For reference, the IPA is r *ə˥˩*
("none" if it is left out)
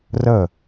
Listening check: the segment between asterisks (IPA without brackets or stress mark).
ə˥˩